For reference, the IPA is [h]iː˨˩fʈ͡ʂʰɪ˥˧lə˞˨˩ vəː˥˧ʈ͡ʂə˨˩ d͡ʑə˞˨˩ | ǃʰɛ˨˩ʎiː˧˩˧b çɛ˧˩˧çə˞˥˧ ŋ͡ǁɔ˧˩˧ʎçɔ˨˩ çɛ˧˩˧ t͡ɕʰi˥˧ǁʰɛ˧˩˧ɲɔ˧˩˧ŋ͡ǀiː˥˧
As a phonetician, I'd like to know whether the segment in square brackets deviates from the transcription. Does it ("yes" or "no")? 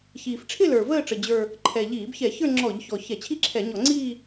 yes